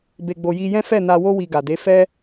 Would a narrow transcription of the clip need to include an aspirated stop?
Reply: no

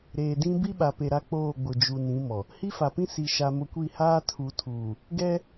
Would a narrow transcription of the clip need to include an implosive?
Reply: yes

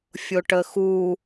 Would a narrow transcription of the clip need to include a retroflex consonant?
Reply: yes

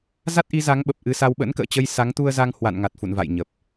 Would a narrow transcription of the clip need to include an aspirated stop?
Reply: no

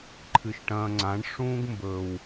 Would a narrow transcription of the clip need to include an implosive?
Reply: no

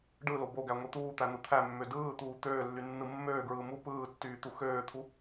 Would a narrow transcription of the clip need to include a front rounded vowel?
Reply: yes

